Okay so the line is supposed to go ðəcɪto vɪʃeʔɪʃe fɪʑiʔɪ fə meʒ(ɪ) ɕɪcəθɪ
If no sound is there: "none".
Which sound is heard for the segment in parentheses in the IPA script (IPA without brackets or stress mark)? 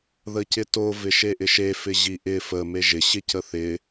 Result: ɪ